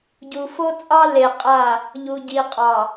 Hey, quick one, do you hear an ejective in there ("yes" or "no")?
yes